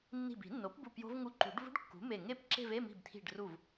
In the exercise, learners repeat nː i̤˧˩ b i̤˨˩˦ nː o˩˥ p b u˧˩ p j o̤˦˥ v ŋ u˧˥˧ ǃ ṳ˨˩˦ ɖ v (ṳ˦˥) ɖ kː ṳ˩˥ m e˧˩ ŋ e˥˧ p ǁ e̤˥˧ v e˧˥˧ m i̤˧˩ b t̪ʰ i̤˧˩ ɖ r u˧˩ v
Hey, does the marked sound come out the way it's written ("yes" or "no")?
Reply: yes